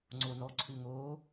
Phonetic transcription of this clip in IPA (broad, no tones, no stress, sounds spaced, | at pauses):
ŋ͡ǀ o n ɔ ǀʰ ʉ ŋ o